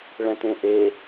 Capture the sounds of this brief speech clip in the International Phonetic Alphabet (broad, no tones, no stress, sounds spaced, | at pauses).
ɭ ɛ̃ t ẽ ʔ e